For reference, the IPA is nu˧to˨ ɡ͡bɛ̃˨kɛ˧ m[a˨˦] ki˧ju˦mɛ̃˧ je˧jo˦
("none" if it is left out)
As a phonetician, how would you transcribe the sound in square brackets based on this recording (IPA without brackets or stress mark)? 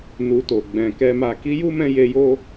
a˧